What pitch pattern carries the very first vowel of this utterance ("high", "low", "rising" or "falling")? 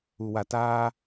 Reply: low